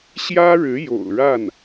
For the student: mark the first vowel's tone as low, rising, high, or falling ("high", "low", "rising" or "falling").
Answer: high